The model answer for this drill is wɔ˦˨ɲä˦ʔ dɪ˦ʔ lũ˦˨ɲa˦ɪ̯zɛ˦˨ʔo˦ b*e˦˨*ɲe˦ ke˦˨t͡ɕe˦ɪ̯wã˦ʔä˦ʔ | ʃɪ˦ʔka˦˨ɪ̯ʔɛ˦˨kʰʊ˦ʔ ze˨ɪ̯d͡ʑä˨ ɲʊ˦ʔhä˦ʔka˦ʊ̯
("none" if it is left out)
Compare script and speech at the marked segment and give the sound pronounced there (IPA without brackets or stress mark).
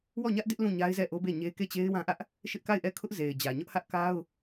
e˦˨